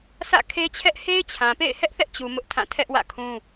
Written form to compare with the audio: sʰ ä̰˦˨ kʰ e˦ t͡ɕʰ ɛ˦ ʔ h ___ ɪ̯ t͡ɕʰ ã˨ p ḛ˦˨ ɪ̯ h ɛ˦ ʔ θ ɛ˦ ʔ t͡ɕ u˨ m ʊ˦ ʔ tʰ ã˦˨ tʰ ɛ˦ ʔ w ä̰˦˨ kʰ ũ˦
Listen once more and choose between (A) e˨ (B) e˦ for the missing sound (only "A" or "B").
B